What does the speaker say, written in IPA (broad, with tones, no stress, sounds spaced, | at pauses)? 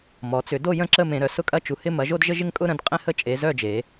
m ɔ˩˧ t͡s ʏ˩˧ d o˥˧ j ə̃˥˧ ǁ ə˥˧ m ẽ˩˧ ɾ œ˩˧ s ʊ˥˧ kʼ ɐ˥˧ t͡ʃ u˩˧ h ɪ˥˧ m ɐ˩˧ ʒ o˥˧ d ʒ ə˥˧ ʒ ɪ˥˧ ŋ kʼ ʊ˥˧ ɾ ə̃˩˧ d qʼ ẽ˥˧ h ə˥˧ t͡ʃʼ e˩˧ z œ˥˧ d͡ʒ e˩˧